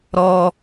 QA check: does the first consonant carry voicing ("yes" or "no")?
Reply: yes